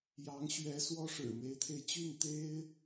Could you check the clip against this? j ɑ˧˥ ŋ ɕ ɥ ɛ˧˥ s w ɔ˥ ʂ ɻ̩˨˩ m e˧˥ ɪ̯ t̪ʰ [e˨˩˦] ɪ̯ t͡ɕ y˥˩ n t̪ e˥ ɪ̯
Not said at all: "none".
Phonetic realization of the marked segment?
e˧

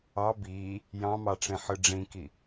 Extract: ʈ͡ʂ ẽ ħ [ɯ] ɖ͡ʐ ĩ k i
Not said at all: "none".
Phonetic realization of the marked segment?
ɯ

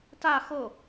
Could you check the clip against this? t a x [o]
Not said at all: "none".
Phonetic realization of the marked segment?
o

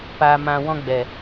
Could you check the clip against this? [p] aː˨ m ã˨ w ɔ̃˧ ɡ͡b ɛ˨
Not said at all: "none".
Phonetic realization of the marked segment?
p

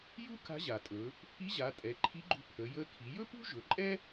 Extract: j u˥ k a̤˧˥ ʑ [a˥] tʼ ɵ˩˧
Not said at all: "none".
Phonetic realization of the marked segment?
a˩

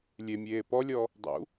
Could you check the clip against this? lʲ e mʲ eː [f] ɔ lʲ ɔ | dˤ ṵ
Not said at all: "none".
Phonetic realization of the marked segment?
p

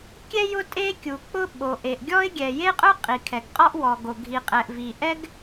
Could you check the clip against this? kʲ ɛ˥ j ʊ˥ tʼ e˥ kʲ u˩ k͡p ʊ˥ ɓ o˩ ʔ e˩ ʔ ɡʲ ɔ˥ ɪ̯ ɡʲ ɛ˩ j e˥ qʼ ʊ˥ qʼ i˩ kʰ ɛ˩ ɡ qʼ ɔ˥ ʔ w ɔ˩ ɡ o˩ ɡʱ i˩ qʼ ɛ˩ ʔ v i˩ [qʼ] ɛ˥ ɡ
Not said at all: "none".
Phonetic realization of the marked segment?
ʔ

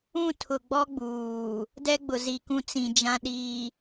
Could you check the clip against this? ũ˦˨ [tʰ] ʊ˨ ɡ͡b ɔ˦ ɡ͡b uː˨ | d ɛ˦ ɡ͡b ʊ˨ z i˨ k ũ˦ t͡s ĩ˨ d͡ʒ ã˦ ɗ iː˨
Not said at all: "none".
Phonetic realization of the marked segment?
tʰ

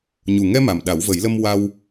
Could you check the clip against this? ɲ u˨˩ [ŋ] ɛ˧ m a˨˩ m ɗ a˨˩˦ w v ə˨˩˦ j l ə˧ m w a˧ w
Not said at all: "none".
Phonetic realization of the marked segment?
ŋ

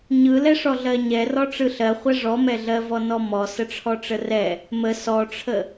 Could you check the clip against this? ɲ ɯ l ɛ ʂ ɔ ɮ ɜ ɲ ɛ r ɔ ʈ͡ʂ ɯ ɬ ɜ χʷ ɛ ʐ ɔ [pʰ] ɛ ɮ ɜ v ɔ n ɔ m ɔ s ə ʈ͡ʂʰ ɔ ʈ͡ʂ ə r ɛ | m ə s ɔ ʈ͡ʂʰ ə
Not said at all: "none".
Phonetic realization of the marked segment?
m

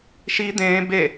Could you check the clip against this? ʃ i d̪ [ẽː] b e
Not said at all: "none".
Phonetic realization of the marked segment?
ẽː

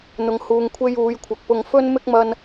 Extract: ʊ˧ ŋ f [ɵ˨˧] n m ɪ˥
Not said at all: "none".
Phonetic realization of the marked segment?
ɵ˥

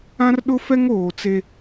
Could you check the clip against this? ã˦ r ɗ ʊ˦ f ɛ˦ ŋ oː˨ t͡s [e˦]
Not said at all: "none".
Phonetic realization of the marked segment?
e˦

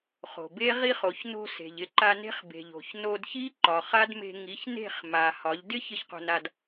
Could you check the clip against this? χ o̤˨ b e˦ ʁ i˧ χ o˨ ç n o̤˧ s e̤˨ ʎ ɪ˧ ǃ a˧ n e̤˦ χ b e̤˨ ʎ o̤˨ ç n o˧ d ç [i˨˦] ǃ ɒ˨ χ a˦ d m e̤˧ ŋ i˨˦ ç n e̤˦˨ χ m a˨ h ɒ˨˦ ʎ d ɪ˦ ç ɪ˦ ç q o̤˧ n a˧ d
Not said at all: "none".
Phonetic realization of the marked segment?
i˦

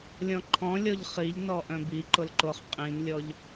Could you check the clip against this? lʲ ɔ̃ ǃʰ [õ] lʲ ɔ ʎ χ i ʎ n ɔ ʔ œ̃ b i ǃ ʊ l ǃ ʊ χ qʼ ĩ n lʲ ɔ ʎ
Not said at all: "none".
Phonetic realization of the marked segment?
ɔ̃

